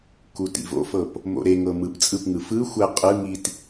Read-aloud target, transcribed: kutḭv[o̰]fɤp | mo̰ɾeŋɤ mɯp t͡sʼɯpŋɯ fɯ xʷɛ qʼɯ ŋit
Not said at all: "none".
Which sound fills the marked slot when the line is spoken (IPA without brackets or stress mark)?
o̰